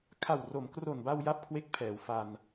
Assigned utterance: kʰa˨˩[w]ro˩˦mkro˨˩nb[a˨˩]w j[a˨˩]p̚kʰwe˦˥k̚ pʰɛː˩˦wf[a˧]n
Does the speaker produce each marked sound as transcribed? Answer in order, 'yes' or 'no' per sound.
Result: yes, no, no, yes

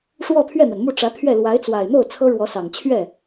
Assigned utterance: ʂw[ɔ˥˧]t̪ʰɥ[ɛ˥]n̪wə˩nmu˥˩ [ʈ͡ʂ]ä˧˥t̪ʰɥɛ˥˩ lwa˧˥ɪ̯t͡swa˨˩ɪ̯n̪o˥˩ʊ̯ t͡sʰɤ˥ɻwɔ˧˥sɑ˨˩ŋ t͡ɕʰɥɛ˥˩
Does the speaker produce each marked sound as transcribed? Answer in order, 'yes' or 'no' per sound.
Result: yes, no, yes

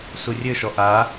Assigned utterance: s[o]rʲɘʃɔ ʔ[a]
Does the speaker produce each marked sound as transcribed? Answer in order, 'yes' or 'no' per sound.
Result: no, yes

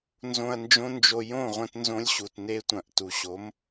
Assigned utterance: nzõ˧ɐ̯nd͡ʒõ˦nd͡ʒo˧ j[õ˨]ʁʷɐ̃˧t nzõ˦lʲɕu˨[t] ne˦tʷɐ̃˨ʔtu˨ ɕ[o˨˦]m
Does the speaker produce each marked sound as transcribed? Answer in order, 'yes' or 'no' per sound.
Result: no, yes, yes

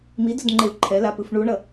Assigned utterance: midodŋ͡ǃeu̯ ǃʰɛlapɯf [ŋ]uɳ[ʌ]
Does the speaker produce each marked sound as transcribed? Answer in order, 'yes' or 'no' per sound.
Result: no, yes

